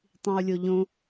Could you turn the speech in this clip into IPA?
tˤĩu̯lʲoʎõ

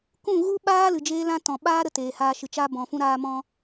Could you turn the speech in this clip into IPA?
kũ˦˨ɣu˦ɓaː˦ lɨ˨d͡ʒeː˦lã˦tɔ̃˨ ɓaː˦ɾə˧ teː˨haː˧ʃɨ˨t͡ʃa˦ bɔ̃˨ fũ˧ɾaː˧mɔ̃˧

